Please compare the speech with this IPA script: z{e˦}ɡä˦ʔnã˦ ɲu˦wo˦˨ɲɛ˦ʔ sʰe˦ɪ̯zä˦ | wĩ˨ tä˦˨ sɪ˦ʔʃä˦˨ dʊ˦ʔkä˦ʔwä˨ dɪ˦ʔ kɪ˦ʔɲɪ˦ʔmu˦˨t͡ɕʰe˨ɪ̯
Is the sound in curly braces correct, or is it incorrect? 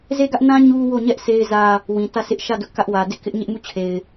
correct